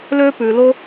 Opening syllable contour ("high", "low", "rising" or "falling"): high